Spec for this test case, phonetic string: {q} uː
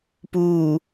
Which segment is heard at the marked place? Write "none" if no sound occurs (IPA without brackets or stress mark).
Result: p